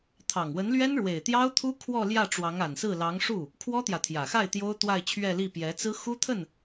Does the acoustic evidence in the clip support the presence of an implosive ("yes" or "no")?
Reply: no